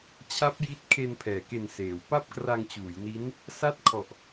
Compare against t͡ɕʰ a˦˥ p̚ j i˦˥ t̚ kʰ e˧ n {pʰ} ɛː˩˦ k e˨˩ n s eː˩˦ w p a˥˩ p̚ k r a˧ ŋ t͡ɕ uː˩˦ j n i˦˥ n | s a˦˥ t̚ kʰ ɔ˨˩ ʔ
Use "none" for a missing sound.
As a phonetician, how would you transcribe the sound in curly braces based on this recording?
pʰ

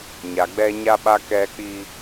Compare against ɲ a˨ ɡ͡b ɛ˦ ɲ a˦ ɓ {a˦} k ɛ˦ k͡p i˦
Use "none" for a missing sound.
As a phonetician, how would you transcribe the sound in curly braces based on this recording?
a˦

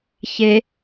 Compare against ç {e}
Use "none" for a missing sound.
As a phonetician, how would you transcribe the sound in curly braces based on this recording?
e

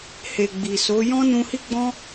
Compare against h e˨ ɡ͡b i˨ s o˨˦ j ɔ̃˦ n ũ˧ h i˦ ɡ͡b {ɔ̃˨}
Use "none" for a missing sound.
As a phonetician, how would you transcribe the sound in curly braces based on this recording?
ɔ̃˦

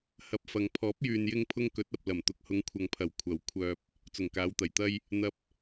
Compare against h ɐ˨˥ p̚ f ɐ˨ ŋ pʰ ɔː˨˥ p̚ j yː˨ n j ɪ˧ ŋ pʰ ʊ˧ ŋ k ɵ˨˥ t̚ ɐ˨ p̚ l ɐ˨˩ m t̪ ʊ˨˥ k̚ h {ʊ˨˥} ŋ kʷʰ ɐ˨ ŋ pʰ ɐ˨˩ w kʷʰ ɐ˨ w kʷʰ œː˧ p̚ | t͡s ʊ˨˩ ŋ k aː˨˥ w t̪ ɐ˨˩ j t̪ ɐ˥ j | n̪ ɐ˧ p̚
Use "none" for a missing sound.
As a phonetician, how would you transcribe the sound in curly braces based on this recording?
ʊ˨˧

